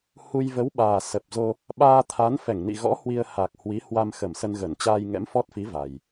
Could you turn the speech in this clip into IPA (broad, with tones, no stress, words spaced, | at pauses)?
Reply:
hu˧j və˨˦wɓaː˨˩ sə˨˩p̚zo˧ | ɓaː˧t̪ʰa˨˦n fɛ˧˩ŋnḭ˧˨ɣɔ̰˧˥ hwi˧ə̯ ha˨˩k̚hwi˨˦hwa˧m xə˧˩m sə˧nɣə˧˩n t͡ɕaː˧jŋɛ̰˧˥mfɔ˦˥t̚fi˨˦ va˨˩j